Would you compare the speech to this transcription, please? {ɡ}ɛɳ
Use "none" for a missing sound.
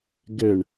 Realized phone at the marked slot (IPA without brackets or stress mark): ɡ